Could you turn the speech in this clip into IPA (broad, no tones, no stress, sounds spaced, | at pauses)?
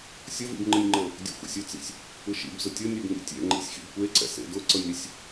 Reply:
sʲ ʌ v ḭ b ŋ͡ǃ ɯ nʲ ŋ͡ǃ ɤ | dʲ ɛ̰ xʷ ḛ sʲ ʊ t͡s ḭ sʲ | ɯ ʃ ḭ b z ʊ tʲ ʌ nʲ ɛ b ŋ ḭ tʲ ɛ̰ ŋ͡ǃ ḭ sʲ x ḭ b kʷ e ǀ ɛ̰ s ḛ d ʊ ǀ ɤ nʲ ɾ i sʲ